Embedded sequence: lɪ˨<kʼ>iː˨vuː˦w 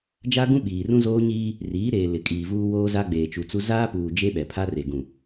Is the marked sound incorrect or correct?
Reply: correct